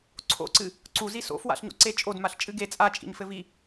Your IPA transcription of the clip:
ǀʰ o̰ ǀ ɨ | ǀ u z i s o̰ f w a̰ ɬ ɲ o̰ ǀ e t͡ʃʼ o d m a ɬ t͡ʃʼ ɨ ɡ e t͡sʼ a t͡ʃʼ ḭ ɲ f ɘ v i

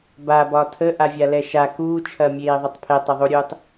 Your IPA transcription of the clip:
b a b ɒ tʰ ə ʔ a vʲ a l ɛ ʃ a k uː t͡ʃʰ ɐ mʲ eː ðˤ ə tˤ pʰ e tˤ ɐ ðˤ u ɾʲ uː tˤ

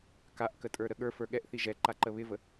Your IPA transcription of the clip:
k a ʔ k ə tʼ ə˞ ɾ ə ɠ ə˞ f ə˞ ɠ ɛ ʔ θ i ʒ ɛ ǃ a ǃ ə β ɪ v ə

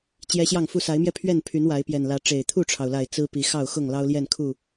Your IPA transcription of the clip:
t͡ɕ j ɛ˦ ɕ j ɑ˥˨ ŋ f u˥˨ s a˨˦ ɪ̯ m j ɛ˧ pʰ ɥ ɛ˥˨ n pʰ y˨˦ n w a˨˦ ɪ̯ p j ɛ˨˩ n l ä˨˦ ʈ͡ʂ e˨˩ ɪ̯ t̪ʰ u˥˨ ʈ͡ʂʰ ɑ˩ ʊ̯ l a˨˩ ɪ̯ t͡s ɹ̩˦ p i˨˦ x ɑ˥˨ ʊ̯ x ʊ˥˨ ŋ l ɑ˦ ʊ̯ l j ɛ˥˨ n kʰ u˥˨

